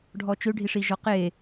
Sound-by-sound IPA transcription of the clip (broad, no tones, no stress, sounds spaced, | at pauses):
ɖʱ ɔ t͡ʃ ø ɖʱ i ʂ i ʒ ɔ q e